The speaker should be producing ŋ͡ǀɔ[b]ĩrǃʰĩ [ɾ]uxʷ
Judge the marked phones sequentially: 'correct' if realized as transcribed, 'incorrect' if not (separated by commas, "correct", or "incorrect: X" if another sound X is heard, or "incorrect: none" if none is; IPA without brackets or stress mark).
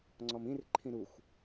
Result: incorrect: m, correct